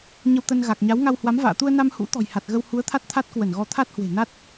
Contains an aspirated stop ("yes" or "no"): yes